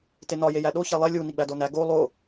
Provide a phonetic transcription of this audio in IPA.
t e n ɒ j e j æ ɗ o ç æ lˠ e lʲ u n i ɡ͡b æ d o n æ ɡ o lˠ o

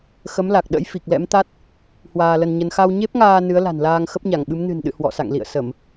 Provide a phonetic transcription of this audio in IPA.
x ə˨˦ m l a˨˩ k̚ ɗ ə̰˧˥ j f i˨˩ k̚ l ɛ̰˧˥ m t̪ a˦˥ t̚ | h w aː˧ l ə˧ n ɲ ə˧ n x a˧ w ɲ e˦˥ p̚ ŋ aː˧ n ɨ˨˦ ə̯ l a̤˨˩ n l aː˧ ŋ x ə˦˥ p̚ ɲ a˧˩ ŋ ɓ ɨ˨˦ m n ɨ̤˨˩ n ɗ ɨ̰˧˨ h w ɔ̰˧˨ s a̰˧˨ ŋ l ḭ˧˨ ə̯ s ə˧˩˨ m

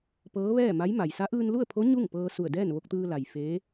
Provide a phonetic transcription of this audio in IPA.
p ɤː˧˥ ʋ ɛː˥˨ m a˧˥ j m a˩ j s a˧˥ ʔ ɯː˧ n l u˥˨ ə̯ pʰ o˧˥ ɲ u˥˨ ŋ p ɤː˧ s u˧˩ ə̯ d ɛː˥˨ n ʋ o˧ k̚ t̪ ɯː˧ l a˩ j f eː˧˥

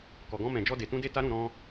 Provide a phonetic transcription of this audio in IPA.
k ɔ˨ ɡ ɔ̃˧ m ɛ̃˨ d͡ʒ ɔ˧ d e˨ t ũ˧ d e˧ t a˦ ɾ ũ˦˨ ɾ ɔ̃˧

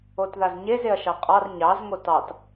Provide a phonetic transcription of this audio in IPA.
o t ð a z ɲ e z e ɐ̯ ʃ ɑ qʼ ɑ r ɲ ɑ z ŋ o t ɑ t

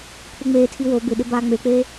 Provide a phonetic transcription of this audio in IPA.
pʰ u ŋ͡m eː tʰ i w o b ɪ ɗ ɪ b aː ŋ͡m e k͡p eː

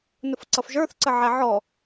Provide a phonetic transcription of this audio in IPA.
n ʊ f ǀ ʌ f ʒ ə˞ θ ǀ ə ʕ æ ʕ ɔ

